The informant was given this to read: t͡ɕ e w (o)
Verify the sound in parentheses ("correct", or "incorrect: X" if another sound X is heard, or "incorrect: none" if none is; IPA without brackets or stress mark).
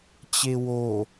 correct